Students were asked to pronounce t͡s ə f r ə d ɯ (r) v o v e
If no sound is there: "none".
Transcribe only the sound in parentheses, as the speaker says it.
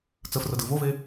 none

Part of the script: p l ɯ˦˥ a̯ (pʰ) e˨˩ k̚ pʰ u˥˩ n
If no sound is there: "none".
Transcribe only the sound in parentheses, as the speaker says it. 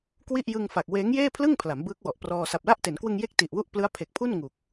pʰ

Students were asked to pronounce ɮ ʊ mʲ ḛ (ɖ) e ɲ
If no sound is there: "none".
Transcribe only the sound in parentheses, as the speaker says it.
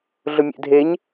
dʱ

